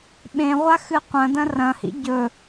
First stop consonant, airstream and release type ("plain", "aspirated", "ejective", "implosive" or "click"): implosive